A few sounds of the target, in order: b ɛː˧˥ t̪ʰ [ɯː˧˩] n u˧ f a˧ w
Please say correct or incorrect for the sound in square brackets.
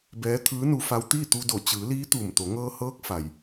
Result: incorrect